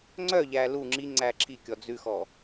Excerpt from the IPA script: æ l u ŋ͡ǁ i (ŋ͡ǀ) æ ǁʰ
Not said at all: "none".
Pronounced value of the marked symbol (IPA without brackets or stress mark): ŋ͡ǀ